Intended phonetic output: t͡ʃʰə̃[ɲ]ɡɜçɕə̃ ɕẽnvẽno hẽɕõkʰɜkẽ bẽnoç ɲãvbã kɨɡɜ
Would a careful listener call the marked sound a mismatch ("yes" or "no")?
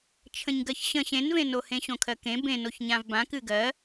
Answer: no